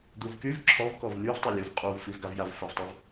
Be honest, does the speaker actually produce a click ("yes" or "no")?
yes